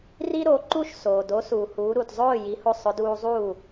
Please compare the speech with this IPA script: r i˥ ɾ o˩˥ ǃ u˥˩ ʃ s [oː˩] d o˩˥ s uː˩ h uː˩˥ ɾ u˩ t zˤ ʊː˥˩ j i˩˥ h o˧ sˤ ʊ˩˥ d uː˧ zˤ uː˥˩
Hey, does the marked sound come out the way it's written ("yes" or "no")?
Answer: yes